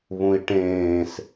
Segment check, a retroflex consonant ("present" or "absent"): present